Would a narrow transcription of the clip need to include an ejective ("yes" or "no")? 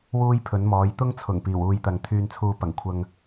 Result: no